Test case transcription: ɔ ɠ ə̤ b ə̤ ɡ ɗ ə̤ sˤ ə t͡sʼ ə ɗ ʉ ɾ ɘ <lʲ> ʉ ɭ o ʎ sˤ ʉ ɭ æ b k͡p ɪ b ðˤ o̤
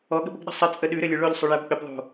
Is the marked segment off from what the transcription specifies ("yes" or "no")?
no